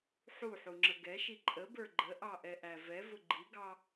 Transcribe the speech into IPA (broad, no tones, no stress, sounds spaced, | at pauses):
ħ u ħ u ŋ͡ǁ ə ɡ ɛ ʃ i ǃʼ ə b ə˞ ɡ͡ǃ ə ʔ ɑ ʔ ɛ ʔ æ v ɛ v ʊ ɡ͡ǃ i ɡ ɑ